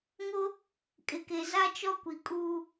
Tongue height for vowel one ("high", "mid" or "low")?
mid